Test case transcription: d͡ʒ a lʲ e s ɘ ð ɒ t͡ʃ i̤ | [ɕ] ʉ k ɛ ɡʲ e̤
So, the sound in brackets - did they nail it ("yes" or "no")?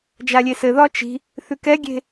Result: no